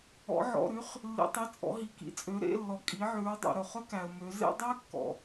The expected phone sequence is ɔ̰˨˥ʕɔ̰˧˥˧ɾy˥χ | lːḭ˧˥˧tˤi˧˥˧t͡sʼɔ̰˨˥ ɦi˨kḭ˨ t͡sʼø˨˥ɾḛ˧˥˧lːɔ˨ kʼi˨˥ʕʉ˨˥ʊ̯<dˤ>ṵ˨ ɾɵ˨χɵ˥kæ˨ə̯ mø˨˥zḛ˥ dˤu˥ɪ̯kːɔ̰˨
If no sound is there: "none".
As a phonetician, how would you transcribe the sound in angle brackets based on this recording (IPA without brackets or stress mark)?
dˤ